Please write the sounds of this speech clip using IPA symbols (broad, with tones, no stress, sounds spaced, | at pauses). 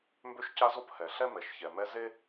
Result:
m b ø˥ ʃ c a˦ z o˦ p h ɛ˩ ɬ ɛ˥ m ɛ˩ ʃ ç ɛ˩ m ɛ˦ z e˥